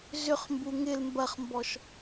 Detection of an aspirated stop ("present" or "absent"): absent